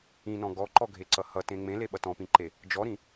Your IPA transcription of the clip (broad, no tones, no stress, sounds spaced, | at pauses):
ĩ n ɔ̃ ɡ ɔ ǃ ɔ ɡʱ e ǀ ʌ h ʌ t ẽ ŋ͡m ẽ l e ɓ ʌ t ɔ̃ p ĩ ǃ e | d͡ʒ ɔ ɾ ĩ